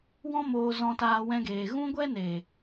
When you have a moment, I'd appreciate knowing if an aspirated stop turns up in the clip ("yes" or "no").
no